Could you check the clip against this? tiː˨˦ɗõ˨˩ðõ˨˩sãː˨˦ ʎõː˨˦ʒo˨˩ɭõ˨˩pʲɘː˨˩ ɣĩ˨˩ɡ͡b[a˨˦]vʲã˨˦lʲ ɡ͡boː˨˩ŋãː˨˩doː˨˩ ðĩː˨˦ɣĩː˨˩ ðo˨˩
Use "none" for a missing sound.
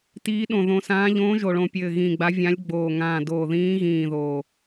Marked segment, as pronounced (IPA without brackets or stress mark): a˨˦